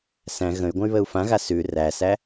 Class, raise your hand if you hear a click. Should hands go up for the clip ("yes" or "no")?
no